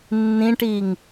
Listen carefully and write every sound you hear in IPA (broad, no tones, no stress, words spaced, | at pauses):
nːĩʈiŋ